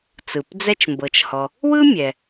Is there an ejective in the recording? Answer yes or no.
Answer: no